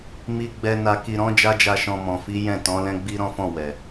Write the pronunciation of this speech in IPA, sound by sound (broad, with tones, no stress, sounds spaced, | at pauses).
m i˧ ɡ͡b ɛ˧ n a˧ k i˧ ɾ ɔ̃˦ d͡ʒ a˦ d͡ʒ a˧ ʃ ɔ̃˧ m ɔ̃˨ f i˨˦ j ɛ̃˦˨ t ɔ̃˨˦ l ɛ̃˦ ɡ͡b i˦ ɾ ɔ̃˦ f ɔ̃˦˨ w ɛ˨